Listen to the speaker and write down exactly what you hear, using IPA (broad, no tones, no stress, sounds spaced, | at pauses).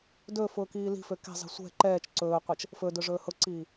d ɵː f ʊː k iː l i̤ f ø k ɛ̤ zˤ i̤ sʷ ɛ̤ ǃ ɛː t͡ʃ ǀ ɵː qʷ ɛ t͡ʃ | f ɵ d ɵ ʐ ɵː h ʊ ǀ iː